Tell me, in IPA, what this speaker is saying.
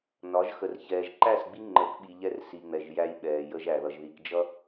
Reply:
n ɒ˨˦ ʒ x ə˨ r ç ɛː˨ ʒ ǃ æ˦˨ s ɡ͡b i˦ ŋ͡ǃ ə˨˦ k ɓ i˨ ʎ ɛ˦ r s i˨ ŋ͡m ɛ˨ ʒ j æ˦ j ɓ ɛː˨ j ə˦ ʒ æ˨ ð ʌ˨ ʒ ð i˨ k d͡ʒ ʌ˦

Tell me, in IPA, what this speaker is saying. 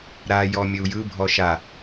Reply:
ɾ a j ɔ mʲ ɵ u̯ j ɯ bʱ ɔ ʃ a

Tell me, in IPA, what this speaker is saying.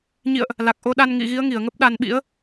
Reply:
ɲ ḭ˧˨ ə̯ ʔ | l a˨˩ k̚ ʔ o˧ ɗ a˧ n ŋ ḭ˧˨ ɣ i˨˦ ə̯ ŋ i˧˩ ə̯ ŋ ə˦˥ p̚ ɗ a˧ n ɓ ḭ˧˥ ə̯

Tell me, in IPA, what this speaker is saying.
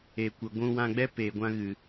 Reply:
e˨ kʷ ə˨ ɡʷ ũ˧ w ã˧ ɡ͡b ɛ˦ p eː˨ ɡʷ ã˧ ɣ ɨ˨

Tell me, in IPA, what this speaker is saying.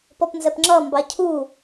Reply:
p ɔ p n z ɛ p ŋ͡ǁ ʌ m b ɑ cʰ u

